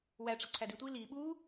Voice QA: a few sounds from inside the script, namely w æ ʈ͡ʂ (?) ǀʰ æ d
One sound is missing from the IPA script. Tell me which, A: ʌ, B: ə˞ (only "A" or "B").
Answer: A